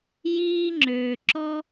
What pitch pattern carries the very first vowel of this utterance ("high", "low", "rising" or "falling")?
high